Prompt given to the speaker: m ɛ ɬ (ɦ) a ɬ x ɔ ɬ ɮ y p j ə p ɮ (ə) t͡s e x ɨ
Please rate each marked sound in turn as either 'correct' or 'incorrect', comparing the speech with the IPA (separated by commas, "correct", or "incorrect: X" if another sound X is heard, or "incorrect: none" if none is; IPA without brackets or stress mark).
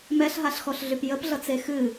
correct, incorrect: ʌ